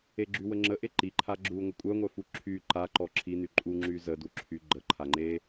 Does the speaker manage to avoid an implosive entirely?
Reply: yes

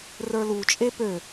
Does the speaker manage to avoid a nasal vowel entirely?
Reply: yes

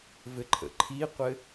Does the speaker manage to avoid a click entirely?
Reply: no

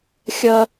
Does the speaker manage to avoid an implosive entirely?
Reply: yes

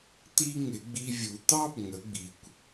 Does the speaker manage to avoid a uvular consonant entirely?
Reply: yes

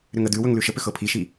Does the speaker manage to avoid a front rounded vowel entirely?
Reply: no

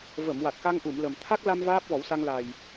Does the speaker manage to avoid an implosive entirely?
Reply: yes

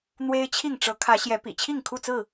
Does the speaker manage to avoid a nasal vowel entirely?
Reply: yes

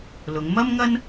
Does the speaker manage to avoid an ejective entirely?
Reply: yes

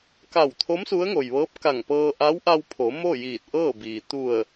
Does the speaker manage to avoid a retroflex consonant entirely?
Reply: yes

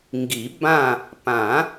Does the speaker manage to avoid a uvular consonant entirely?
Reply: yes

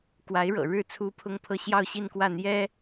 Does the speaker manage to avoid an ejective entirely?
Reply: yes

